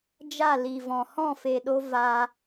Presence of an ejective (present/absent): absent